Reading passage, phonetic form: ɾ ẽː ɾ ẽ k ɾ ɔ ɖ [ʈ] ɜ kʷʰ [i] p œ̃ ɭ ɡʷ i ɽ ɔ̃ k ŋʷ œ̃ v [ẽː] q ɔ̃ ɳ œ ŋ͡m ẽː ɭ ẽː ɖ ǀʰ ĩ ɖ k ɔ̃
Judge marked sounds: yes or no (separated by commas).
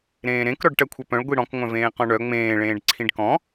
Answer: yes, no, yes